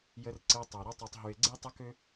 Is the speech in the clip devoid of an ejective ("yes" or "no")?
yes